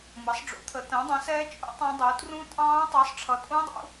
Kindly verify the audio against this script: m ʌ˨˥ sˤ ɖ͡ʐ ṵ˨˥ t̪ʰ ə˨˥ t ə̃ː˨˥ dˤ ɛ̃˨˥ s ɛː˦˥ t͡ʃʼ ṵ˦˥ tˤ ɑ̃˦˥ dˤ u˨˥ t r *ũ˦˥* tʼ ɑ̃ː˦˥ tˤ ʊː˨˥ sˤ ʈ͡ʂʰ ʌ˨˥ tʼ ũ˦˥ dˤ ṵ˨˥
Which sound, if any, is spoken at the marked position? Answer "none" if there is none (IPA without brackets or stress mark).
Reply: ũ˦˥